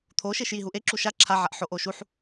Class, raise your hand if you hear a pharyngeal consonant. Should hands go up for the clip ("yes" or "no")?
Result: yes